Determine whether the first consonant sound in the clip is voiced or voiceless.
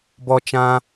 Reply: voiced